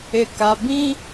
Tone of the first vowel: low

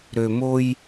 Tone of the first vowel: low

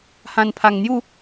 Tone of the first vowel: low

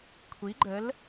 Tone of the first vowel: rising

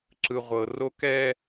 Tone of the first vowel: low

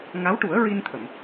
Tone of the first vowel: rising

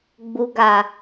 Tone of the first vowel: low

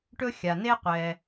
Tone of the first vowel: high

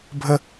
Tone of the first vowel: high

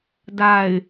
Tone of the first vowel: low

